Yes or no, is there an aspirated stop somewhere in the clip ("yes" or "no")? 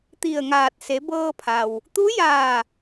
yes